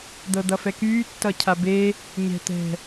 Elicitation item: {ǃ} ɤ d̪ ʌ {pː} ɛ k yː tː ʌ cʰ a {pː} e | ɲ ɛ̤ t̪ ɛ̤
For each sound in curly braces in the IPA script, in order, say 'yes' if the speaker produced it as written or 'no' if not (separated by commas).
no, no, no